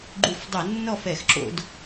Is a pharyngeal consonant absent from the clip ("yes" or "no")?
yes